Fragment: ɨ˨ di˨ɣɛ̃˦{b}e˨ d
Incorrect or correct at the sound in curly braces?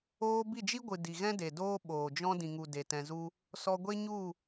incorrect: d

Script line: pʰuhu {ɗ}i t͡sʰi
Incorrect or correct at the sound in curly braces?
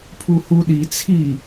correct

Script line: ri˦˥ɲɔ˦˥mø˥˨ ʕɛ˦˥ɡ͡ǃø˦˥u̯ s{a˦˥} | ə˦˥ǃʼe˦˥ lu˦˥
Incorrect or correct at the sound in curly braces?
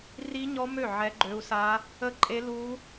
correct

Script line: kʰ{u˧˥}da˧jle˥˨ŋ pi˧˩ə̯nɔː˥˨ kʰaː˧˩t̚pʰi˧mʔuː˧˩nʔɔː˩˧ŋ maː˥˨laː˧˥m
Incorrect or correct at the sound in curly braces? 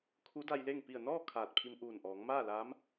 correct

